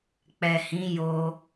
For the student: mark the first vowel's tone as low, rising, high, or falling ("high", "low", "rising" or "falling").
low